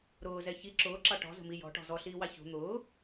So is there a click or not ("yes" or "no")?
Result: yes